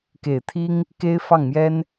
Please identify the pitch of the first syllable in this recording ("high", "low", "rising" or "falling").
low